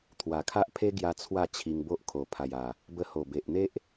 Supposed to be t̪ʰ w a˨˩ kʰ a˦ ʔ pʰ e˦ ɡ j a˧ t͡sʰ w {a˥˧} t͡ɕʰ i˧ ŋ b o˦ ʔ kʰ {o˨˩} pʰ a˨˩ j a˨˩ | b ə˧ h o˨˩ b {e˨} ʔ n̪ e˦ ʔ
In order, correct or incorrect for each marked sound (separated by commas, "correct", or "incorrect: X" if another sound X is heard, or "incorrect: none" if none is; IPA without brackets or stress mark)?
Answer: correct, correct, correct